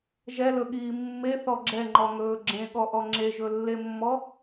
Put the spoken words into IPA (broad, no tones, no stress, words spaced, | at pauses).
ʒɛlɵɠiː mːeθɔ ɡ͡ǁɛŋ͡ǃɔŋɵː ɡ͡ǁẽɠɔʔɔ ŋ͡ǁeʒɵlːemːɔ